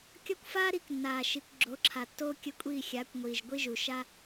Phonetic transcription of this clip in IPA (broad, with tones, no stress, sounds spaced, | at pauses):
kʲ ɒ˦ kʷ f aː˦ ɾ i˨˦ k nː aː˨ ʃ i˨ kʷ ɡ͡ǁ o˨˦ ǁʰ a˨ tː oː˦ kʲ ə˦ kʷʼ iː˦˨ xʲ aː˨˦ kʷ ŋʷ iː˨ ʒ ɡʷ i˦ ʒ u˨ ʃ a˦